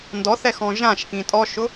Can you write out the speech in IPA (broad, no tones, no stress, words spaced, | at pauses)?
ndɔθɛxɔ̃ ʒãʃkĩ tʼɔʃʊ